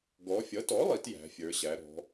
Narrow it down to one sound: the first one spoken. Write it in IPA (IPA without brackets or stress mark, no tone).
ɡ